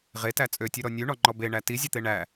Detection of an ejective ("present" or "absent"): present